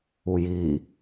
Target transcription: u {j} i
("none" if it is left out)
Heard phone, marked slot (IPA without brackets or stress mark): j